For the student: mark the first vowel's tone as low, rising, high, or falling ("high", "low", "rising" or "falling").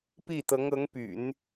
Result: falling